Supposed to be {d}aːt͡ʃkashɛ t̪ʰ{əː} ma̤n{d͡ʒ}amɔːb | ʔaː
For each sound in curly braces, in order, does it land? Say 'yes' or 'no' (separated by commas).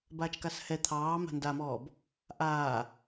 no, no, no